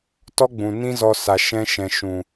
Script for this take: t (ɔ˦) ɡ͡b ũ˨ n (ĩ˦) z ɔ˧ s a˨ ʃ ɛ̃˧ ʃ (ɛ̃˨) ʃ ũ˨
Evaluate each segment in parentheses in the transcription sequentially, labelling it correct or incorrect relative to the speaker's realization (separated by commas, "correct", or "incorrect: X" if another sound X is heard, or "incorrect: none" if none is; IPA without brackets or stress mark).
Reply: correct, correct, correct